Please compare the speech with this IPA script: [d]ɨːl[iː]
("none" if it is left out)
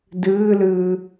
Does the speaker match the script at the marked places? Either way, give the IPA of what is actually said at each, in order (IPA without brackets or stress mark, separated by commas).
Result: d, ɨː